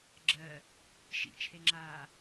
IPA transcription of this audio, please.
ɡ͡ǁ ɜ | ʃ ḭ t͡ʃʰ e ŋ͡ǁ aː

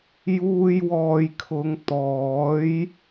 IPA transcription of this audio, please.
j uː˧ j w ɔː˨ j kʰ ʊ˨˧ ŋ t̪ ɔː˨˥ j

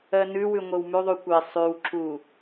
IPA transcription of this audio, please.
ɜ n ʉ w ʉ ŋʷ e w m ʉ ðˤ u kʷ e sˤ ʉ w ǁ u

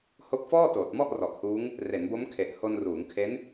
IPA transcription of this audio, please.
h o˦˥ k̚ f ɔː˥˩ t oː˨˩ t̚ m ɔ˥˩ ʔ r ɔ˨˩ ʔ h uː˦˥ ŋ | r e˩˦ n b o˦˥ m kʰ e˨˩ ʔ h o˧ n r uː˩˦ ŋ kʰ e˦˥ n

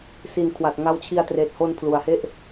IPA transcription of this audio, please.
s i˨˩ n kʰ w a˨˩ t̚ ŋ a˦˥ w t͡ɕʰ i˧ a̯ t r eː˨˩ t̚ h o˧ n pʰ l u˩˦ a̯ h e˥˩ ʔ

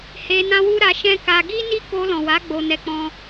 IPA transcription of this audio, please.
h e˧ n ã˦ w u˦ ɾ a˧ ʃ ɛ̃˦ k a˧ ɡ i˦ n i˦ k o˧ l ɔ̃˨ w a˨˦ ɡ͡b o˧ n ɛ˧ k͡p ɔ̃˦

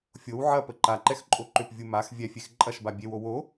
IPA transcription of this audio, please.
fʲ o w ʕ ɐ p ə ǃ a ǃ ɛ x ǃʼ o ǃ ʏ p vʲ u m a x vʲ ɛ fʲ e x ǃʼ ɐ ʃ b a bʲ e w o w o

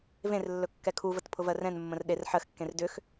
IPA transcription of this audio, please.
v ẽ r lː ɵ kː ɛ kʰ u v ə t pʰ ʊ v ɜ r ɛ̃ n mː ə̃ r ɗ e r ħ ɜ x kː ẽ r d ʏ x

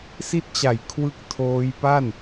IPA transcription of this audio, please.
s i˦˥ t̚ t͡ɕ a˩˦ j kʰ w ɯ˥˩ k̚ tʰ oː˦˥ j p a˥˩ n

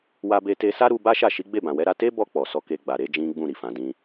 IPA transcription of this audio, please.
w a˧ b e˧ t e˧ s a˦ ɾ u˧ b a˦ ʃ a˦˨ ʃ i˨˦ ɡ͡b e˦˨ b ã˨ w ɛ˨˦ ɾ a˧ t e˦ b ɔ˧ k͡p ɔ˨ s ɔ˧ k e˧ ɡ͡b a˨ ɾ e˨˦ d͡ʒ ĩ˦ ɡ͡b ũ˦˨ ɾ i˨ f ã˨˦ d ĩ˦

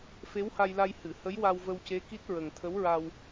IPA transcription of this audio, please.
f e˧˥ w h a˧ j l a˧ j h ɨ˨˩˨ h ə˧˥ j w a˧ w v ə˧ w c e˧˥ k i˦˥ t̚ ɹ ə˨˩ ŋ t̪ʰ ə˧˥ w ɹ a˧ w

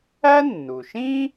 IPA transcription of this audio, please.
æ˥ nː u˩ ʃ ĩ˥

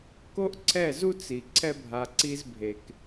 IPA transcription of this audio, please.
k o˦ ʔ ǀʰ ɛ˦˨ z u˦ t͡s i˨ ǀʰ ɛ˦ bʱ a˧ ǀ i˦ z bʱ e˧ k

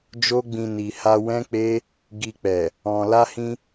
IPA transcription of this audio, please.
d͡ʒ o˧ ɡ͡b ĩ˨ n i˨ h a˧ w ɛ̃˦ k͡p e˦ | ɡ i˨ k͡p ɛ˨ | ɔ̃˨ l a˧ h ĩ˧

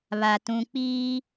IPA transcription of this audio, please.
β a˨ t ũ˨ k͡p iː˦

